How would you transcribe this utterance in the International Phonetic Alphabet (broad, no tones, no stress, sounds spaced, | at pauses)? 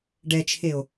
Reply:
ɖ ɛ t͡ʃʰ e o̯